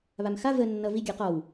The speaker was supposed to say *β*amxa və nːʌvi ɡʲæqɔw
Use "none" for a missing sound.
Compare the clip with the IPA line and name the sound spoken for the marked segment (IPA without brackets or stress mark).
β